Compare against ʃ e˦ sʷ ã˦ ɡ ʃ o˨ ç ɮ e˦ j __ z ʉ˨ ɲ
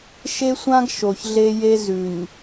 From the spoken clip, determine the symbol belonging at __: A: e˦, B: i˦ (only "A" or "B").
A